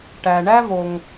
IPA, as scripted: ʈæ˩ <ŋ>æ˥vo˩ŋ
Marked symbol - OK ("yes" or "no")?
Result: no